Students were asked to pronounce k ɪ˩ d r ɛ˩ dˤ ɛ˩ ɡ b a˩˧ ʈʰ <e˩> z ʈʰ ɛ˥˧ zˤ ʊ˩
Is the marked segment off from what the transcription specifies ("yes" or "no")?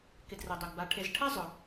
yes